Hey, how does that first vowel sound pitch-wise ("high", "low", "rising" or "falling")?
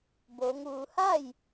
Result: rising